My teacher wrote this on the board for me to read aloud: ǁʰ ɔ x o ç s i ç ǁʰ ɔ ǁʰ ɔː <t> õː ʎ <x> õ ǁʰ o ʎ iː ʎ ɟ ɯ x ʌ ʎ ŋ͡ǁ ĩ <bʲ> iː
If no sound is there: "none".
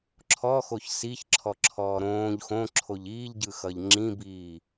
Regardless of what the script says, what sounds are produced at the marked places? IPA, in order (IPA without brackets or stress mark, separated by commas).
ɾ, x, b